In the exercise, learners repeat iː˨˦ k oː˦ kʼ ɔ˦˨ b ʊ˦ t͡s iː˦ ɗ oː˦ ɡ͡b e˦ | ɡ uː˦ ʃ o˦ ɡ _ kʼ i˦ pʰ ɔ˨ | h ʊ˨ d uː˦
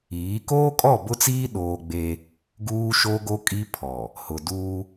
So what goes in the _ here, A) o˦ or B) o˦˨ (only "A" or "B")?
A